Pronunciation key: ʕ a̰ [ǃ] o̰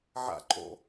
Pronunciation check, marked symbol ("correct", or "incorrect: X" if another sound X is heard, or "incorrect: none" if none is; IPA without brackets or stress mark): correct